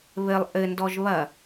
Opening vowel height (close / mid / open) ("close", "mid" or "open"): mid